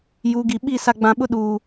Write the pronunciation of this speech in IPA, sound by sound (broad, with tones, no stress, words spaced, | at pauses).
ju˨˦ɡi˨ ɓi˦˨ sa˨ɡ͡bã˨ɓʊ˦ ɗuː˨